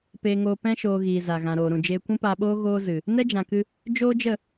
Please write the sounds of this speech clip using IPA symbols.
p eː˧ ŋ oː˧ p ɛ̃˦ ʃ oː˧ ɣ iː˨ z a˨ ɣ ã˨ ɾ oː˨ ɾ ũ˨ d͡ʒ eː˧ kʷ ũ˦ p aː˧ ɓ oː˦ ɣ oː˧ z ɨ˨ | n ɛ˦ d͡ʒ ã˨ k ɨ˧ | d͡ʒ oː˦ d͡ʒ ə˦˨

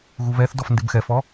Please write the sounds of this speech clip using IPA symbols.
ɣ u β ɛ θ d ɔ f n d ɪ b x ɛ f ɔ

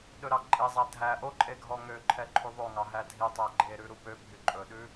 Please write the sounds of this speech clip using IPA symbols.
ɗ ɵ ɾ ɑ ǃʼ e zˤ æ dʱ æ ʔ o ǃʼ e ɡʱ ɔ ŋ ø ǃʰ ɛ ǃʰ y ðˤ o ŋ ɑ ɦ æ dʱ i tˤ æ ɡ͡ǃ e ɾ ʉ ɾ u p ø bʱ y ǃʼ ɵ ɗ ʉ

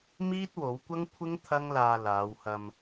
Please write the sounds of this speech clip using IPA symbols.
m iː˥ t̚ w o˨˥ w kʷ ɐ˥ ŋ kʷʰ ɪ˥ ŋ t̪ʰ ɐ˥ ŋ l aː˧ l aː˨˧ w h ɐ˧ m

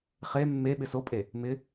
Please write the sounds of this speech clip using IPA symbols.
χ e mː e ɓ ɪ s o pʼ e | m ɪ

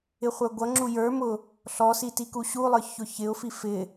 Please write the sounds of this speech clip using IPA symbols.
ɪ χʷ ə˞ ɡʷ ʌ ŋ͡ǁ u j ə˞ m ʊ | ɬ ɔ s i t i k u ɕ u lˠ ə˞ ç ʊ ç ɪ ʊ̯ f i f ɪ

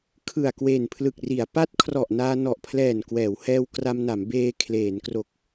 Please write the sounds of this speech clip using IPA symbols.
kʰ ɯ˨˩ a̯ k w e˨˩ n pʰ l ɯ˨˩ k̚ r i˩˦ a̯ p a˦˥ t̚ kʰ r ɔ˨˩ ʔ n aː˧ n ɔ˨˩ ʔ pʰ l ɛː˨˩ n k w ɛː˩˦ w h ɛː˧ w k r a˧ m n a˩˦ m b eː˧ kʰ l eː˩˦ n k r o˨˩ k̚

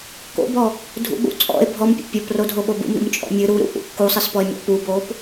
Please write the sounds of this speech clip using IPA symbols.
k o̰ b ɔ | dʱ ṵ ɓ ṵ t͡sʼ ɔ̰ e̯ bʱ ɔ m pʲ o̰ pʲ o p r o dʱ o ɓ o b ṵ m ɾ ṵ m t͡ʃʼ ɔ̰ mʲ ɨ ɾ u ɾ ṵ ʔ ṵ kː u sˤ ɨ s p ɔ e̯ mʲ ɔ̰ p u b o p

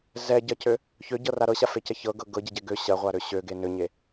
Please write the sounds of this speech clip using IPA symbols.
z ɛ ɟ ɐ c ø | ç ø ɟ ɤ r a ɾ ɤ ɕ a f e c ɐ ç ɤ ɡ ɤ ɡ ɤ ɟ ɛ ɟ ɛ ɡ ø ɕ ɐ ʁʷ a ɾ ø ɕ ø ɡ e n ø ɲ e

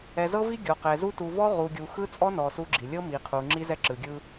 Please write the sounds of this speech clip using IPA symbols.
ɛ˨ z ɤ˦ v i˦ ɡʲ ɔ˨ q ɛ˨ z u˦ t u˨ v ɔ˦ ʁ u˨ ɡʲ u˨ x ɯ˦ t͡sʼ ɔ˦ n ɔ˨ s u˦ ɡ͡ǁ i˨ lʲ ɤ˦ m i˨ qʰ u˨ ŋ͡ǁ i˦ z ɛ˦ ǁ ɯ˨ ɡʲ ɯ˦

